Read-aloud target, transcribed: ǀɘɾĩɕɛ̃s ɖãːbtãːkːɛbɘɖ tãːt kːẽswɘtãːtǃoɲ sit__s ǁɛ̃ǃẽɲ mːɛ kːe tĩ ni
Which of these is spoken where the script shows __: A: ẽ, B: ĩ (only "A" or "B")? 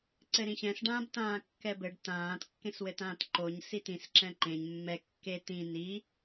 B